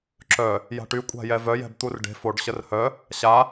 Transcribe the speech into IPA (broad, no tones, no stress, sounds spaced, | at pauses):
ǁ œ | j a̤ ʈ y kʷʼ a̤ j ɛ v œ j ɛ̤ b t̪ u r ɖ e̤ f o ɖ ɕ ə r h œ | ɕ a